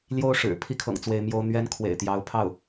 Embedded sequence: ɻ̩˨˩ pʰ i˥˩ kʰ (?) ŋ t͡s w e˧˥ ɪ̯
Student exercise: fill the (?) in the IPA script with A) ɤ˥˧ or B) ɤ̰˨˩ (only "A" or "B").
B